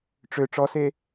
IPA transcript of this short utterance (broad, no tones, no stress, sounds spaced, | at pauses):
ʈ͡ʂ ø ʈ͡ʂ ɔ s e